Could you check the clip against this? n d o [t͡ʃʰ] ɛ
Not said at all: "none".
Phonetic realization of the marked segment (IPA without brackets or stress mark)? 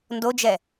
d͡ʒ